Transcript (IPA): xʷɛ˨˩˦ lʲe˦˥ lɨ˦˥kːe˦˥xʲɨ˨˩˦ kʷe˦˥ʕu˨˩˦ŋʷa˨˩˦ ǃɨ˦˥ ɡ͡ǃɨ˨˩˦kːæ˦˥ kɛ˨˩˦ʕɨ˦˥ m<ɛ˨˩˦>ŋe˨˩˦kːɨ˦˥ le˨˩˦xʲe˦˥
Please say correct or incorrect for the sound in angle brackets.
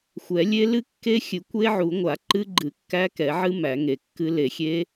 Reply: incorrect